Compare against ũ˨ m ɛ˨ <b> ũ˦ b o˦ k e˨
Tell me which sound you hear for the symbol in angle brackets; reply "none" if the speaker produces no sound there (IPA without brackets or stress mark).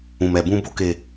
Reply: b